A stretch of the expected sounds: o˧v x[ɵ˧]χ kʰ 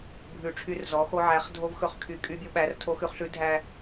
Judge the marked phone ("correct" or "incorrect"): correct